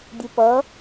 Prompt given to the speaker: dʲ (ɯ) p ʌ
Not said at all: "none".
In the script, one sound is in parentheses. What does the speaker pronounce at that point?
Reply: ɯ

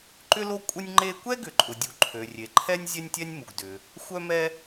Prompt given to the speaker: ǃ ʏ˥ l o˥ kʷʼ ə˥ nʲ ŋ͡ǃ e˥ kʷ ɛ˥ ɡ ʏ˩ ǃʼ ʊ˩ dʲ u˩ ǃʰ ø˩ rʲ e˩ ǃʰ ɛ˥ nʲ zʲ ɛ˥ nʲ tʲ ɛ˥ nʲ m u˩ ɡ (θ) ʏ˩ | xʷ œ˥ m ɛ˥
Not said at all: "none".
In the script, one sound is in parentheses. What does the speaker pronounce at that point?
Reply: d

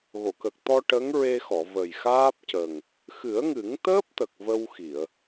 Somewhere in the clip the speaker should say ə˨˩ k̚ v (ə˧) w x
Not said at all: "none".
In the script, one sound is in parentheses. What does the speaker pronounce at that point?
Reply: ə˧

